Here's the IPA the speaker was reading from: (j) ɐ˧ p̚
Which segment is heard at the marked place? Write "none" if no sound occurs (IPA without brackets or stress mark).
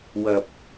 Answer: w